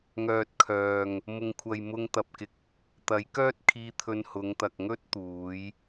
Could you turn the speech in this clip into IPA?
ŋœː˨t̚kʰœː˨ŋ | mʊ˨ŋkʷʰɐ˨j mʊ˧ŋt̪ɐ˨p̚kɪ˧k̚ | t̪ɐ˨˥jkœː˥t̚kʰiː˧t̪ʰɵ˧n hʊ˨˧ŋt̪ɐ˨k̚ŋɵ˥t̚ t̪uː˨˧j

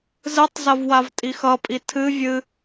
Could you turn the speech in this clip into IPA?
zɨtˤzɐv wavtʼixʌpʼi tʰɨ vʲɨ

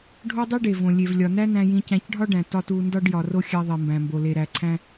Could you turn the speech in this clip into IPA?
ɖʱo˥dˤi˥ɖe˩võ˩ lʲe˩vlʲɒ˩næ˥ næ̃˧jĩ˧cæ̃˧c ɖʱɒ˥ɖæ̃˩ tɒ˧t u˧ndɒ˥ɖ jɒ˩ro˧ xʲæ˧ðˤi˩ mbæ̃˩mbo˩le˩ ɾæ˩ ǀʰæ̃˧

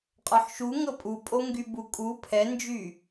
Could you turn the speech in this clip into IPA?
qʼɒħʃu ŋɤpʼupʼo ŋɡybukʼu pʰɛnd͡ʒy

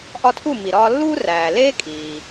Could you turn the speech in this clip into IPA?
ʔɒ˧ tʰu˥˩mi˩ɾɒː˧lːuː˥ ræː˩leː˥ kʼiː˩

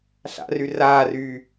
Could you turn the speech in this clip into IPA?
ɬa̰ry raːryː

